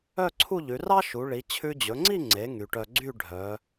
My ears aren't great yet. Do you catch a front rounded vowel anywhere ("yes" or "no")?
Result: yes